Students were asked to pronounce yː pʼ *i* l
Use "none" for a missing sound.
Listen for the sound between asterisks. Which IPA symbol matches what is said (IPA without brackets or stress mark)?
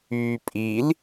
i